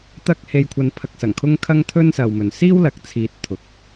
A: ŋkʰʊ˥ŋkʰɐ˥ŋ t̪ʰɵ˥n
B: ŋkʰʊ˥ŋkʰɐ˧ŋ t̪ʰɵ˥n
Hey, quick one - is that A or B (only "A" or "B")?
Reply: A